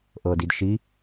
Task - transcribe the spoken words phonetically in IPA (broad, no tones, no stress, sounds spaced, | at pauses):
ʔ ɤ d i d ʃ i